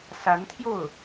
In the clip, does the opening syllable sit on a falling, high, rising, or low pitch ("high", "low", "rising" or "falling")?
rising